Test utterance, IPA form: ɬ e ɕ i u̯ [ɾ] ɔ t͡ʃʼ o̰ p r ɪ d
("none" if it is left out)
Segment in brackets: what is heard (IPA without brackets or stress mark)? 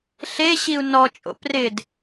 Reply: n